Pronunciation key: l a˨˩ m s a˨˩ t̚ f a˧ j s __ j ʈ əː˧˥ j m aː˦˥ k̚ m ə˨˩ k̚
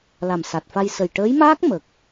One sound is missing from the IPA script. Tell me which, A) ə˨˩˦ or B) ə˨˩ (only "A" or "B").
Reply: B